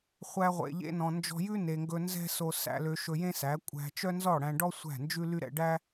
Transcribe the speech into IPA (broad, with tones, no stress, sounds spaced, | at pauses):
χʷ æ˧ ʁʷ ḛ˨ ʎ ḛ˧ n ɔ̃˨ n d͡ʒ ɔ̤˧ j ʉ˦ n e˨ ŋ ɡ ɵ˧ n z ɛ̤˦ s o˧ s æ̰˧ l ø˧ ʃ ɵ˧ j ẽ˦ s æ˨˦ kʷʼ æ̤˧ t͡ʃ œ˦ n z ɔ˦˨ ɽ æ̃˧ ɖ ɔ˦ sʷ æ̤˦˨ n d͡ʒ ʉ˦ l y˦ ɾ ɛ̰˧ ɖ æ˦